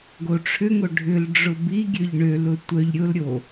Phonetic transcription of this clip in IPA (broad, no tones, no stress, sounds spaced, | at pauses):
ɡ o ʈ͡ʂʰ ʏ ŋ o ɖʱ ʏ l ɖ͡ʐ ʊ b i ɡʲ ø ʎ ɳ ø l ʊ tʷ œ ʎ ɾʲ ʊ l ɾʲ o